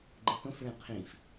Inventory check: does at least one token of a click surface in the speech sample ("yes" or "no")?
yes